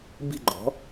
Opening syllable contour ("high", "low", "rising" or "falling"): falling